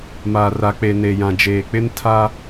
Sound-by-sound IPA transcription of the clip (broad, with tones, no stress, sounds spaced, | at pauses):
m aː˨ r a˨ k͡p e˨ n e˨ j ã˨ d͡ʒ eː˨ k͡p ɪ˦ n tʰ a˦